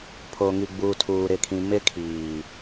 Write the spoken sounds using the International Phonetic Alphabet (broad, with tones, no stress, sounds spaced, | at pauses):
pʰ o˨ ŋ i˨ ɡ͡b uː˨ tʰ uː˨ ɾ ɪ˨ kʰ ĩ˨ m ɪ˦ kʰ iː˨